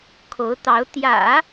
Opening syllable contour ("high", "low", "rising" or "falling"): rising